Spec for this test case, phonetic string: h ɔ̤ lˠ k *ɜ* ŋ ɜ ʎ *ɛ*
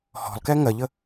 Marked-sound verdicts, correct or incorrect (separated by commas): incorrect, incorrect